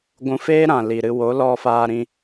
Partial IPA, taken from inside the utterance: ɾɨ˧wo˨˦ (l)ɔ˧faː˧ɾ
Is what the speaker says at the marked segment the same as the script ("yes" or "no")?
yes